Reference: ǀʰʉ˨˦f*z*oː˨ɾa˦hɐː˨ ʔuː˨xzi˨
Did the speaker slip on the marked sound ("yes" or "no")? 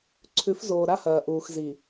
no